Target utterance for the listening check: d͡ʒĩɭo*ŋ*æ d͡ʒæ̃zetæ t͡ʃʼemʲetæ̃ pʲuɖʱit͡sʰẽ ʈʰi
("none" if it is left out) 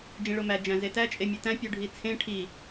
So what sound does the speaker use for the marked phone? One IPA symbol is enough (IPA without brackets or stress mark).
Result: m